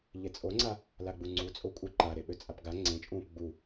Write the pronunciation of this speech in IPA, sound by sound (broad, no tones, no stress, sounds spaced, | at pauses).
ʎ e t͡sʼ o ŋ͡ǀ a | l a ɡ͡b u ŋ͡ǀ u t͡sʼ o kʷʼ œ ǃ a ɾ e ɓ ø t͡sʼ a p ɡ a ŋ͡ǀ ẽ t͡ʃʼ ũː p ɡ͡b u